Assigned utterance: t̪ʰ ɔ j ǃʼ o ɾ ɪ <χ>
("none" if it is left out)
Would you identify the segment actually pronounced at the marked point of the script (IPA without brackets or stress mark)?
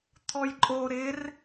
r